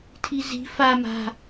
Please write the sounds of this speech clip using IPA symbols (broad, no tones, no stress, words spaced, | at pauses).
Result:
tʰizi̤ fa ma̤